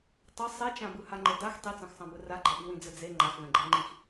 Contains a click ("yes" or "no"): yes